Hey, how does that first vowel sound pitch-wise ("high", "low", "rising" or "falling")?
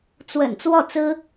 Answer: low